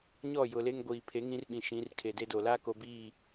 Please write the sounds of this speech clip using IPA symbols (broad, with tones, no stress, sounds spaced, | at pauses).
ɲ ɔ˦˨ j ʊ˨ l e˦ ŋ ɡʷ iː˨ pʰ e˨˦ ŋ ĩ˦ r ɓ ĩ˨ ʃ ĩ˨˦ r kʰ e˨ d e˦ d o˨ l a˦ k o˨ b i˦˨